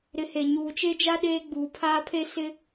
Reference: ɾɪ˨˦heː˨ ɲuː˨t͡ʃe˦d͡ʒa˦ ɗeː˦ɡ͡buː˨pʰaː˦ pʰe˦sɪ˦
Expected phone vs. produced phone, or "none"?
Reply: none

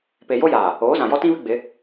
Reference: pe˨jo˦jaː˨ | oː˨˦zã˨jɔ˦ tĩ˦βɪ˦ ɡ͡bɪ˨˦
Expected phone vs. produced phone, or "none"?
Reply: none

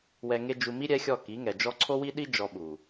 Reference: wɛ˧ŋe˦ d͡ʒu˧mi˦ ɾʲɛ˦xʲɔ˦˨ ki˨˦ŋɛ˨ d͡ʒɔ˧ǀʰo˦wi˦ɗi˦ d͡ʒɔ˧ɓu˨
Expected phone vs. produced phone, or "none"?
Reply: none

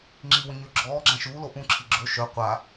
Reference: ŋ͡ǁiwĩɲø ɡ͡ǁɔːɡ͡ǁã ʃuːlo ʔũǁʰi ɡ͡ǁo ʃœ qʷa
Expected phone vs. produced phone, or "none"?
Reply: none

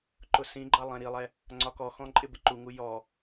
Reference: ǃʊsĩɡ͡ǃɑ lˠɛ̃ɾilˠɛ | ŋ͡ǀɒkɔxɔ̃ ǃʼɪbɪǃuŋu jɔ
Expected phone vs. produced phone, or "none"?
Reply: none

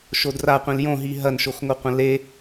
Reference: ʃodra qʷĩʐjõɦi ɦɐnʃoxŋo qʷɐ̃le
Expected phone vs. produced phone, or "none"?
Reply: ʐ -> l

